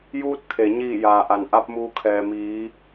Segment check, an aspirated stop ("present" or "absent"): present